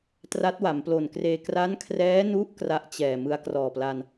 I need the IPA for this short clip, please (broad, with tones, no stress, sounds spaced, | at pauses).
t r a˦˥ t̚ w a˩˦ m p l o˨˩ n k r eː˧ k r a˦˥ n kʰ r ɛː˦˥ n u˦˥ ʔ k r a˥˩ ʔ t͡ɕ ɛː˨˩ m ɯ˦˥ a̯ k r ɔː˨˩ p l a˧ n